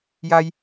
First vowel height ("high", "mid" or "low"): low